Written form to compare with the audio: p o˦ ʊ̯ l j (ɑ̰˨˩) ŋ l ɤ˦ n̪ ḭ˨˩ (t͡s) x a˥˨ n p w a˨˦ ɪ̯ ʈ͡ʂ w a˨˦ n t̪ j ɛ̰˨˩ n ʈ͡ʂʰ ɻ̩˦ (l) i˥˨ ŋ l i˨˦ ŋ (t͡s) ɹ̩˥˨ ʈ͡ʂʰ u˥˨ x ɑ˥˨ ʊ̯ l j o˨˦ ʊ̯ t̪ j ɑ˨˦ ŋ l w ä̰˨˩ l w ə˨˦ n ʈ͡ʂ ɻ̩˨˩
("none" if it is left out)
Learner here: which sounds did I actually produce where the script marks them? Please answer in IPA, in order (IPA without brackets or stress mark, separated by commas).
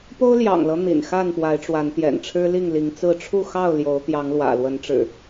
ɑ̰˨˩, n, l, t͡s